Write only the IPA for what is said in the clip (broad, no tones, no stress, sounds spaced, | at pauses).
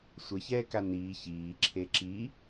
sʷ ə ç ɛː k a n iː ç iː ǁʰ e ǁ i